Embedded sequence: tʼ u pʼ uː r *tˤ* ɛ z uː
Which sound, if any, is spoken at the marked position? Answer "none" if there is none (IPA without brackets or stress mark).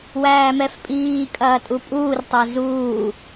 tˤ